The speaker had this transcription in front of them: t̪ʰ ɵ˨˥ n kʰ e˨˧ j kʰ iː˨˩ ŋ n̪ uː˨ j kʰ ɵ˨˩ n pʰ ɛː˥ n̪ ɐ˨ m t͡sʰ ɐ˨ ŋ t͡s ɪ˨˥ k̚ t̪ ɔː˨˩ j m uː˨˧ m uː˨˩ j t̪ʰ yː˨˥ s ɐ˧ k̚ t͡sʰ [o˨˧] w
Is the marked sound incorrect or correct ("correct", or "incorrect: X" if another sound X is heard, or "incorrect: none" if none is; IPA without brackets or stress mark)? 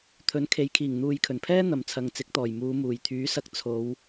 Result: correct